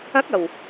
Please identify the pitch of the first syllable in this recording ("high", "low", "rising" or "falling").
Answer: rising